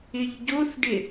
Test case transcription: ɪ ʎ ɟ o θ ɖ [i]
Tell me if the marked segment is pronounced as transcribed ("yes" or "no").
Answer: no